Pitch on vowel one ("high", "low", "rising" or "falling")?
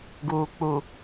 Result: low